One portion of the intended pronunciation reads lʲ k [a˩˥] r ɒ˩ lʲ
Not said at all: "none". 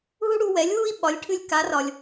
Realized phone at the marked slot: a˩˥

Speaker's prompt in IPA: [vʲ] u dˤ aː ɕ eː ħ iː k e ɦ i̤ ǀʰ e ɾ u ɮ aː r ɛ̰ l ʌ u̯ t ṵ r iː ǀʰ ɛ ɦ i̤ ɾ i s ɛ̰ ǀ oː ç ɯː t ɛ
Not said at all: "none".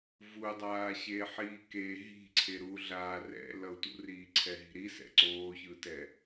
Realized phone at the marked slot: v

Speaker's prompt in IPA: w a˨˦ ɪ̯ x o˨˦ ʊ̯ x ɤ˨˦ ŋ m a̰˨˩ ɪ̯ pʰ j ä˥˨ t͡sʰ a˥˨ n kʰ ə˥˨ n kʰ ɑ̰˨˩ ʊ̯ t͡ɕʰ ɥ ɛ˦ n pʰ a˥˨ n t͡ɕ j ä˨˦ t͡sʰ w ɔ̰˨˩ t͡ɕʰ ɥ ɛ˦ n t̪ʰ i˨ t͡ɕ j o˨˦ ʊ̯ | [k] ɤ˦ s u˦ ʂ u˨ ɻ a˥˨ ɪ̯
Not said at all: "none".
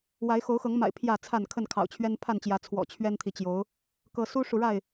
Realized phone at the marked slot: k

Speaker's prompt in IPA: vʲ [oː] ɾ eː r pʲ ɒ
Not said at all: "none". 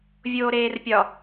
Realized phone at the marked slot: oː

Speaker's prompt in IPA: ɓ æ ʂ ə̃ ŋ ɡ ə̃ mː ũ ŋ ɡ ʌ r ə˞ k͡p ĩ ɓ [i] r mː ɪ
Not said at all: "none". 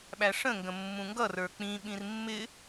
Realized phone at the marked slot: ĩ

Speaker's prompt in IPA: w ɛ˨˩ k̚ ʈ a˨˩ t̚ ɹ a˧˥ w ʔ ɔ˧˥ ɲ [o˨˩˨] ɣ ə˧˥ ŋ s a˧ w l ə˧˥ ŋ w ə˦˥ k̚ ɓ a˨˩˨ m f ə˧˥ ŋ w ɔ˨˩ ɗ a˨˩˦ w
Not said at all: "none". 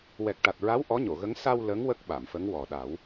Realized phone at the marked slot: o˨˩˨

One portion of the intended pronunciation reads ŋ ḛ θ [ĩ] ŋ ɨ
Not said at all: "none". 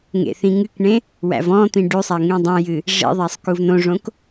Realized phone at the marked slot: ĩ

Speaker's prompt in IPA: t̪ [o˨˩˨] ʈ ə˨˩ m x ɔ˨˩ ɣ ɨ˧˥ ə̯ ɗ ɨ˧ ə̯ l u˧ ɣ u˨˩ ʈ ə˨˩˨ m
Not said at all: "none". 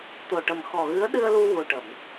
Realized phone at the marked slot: o˨˩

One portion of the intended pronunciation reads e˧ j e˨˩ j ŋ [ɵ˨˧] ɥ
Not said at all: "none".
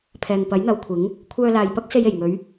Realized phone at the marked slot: ɵ˨˧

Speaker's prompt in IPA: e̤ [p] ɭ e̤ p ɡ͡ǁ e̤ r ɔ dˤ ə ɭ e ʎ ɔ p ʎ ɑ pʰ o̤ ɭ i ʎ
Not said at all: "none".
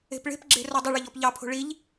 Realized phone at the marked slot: p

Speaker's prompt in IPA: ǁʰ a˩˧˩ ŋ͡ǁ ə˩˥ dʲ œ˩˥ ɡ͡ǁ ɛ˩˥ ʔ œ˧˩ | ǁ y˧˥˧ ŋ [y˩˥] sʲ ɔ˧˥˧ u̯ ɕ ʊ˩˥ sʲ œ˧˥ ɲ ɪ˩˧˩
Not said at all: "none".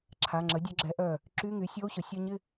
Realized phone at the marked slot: y˩˥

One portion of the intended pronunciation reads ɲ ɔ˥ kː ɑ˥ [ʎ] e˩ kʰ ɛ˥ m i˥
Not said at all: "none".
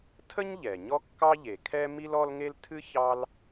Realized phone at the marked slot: ʎ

